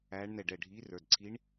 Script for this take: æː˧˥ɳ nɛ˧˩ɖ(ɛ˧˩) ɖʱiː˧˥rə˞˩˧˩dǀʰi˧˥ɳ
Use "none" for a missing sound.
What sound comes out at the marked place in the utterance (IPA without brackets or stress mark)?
ɛ˧˩